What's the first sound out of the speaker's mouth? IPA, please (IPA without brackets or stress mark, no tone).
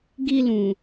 ɡ